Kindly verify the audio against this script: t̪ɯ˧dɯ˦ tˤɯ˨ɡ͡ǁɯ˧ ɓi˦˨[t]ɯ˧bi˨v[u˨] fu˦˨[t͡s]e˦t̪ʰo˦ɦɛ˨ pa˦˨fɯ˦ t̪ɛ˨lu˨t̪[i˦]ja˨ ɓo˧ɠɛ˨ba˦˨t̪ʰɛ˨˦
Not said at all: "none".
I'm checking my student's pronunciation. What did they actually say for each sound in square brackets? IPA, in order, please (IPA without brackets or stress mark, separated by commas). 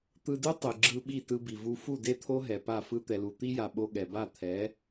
t, u˧, d, i˦